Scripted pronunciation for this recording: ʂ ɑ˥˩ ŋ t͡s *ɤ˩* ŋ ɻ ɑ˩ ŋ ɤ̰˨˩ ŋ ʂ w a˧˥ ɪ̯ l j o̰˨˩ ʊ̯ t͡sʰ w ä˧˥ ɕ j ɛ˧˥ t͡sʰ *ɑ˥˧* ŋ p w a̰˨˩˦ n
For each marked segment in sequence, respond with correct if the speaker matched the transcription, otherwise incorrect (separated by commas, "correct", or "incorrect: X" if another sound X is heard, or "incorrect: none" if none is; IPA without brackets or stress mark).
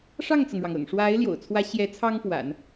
correct, incorrect: ɑ˥